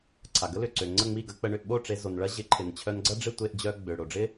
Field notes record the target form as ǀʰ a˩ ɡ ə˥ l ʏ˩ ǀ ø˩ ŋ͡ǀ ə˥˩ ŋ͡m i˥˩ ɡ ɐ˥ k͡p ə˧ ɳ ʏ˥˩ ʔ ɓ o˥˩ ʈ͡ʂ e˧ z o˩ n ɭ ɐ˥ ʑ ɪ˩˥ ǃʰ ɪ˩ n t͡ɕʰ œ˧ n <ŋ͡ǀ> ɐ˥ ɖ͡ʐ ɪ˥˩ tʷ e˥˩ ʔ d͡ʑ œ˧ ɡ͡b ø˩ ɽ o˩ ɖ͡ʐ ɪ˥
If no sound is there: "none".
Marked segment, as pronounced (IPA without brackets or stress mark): ɡ͡ǀ